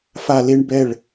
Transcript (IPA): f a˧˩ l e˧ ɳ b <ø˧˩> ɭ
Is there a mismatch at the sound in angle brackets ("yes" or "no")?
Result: yes